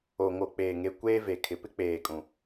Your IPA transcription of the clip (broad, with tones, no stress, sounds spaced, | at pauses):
o˨ ŋ o˨ k͡p eː˨ ŋ e˨ kʷ eː˦ v e˨ kʰ ɪ˨ p ɪ˦ k͡p eː˨ kʼ ũ˨